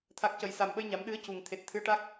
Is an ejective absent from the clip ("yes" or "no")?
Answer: yes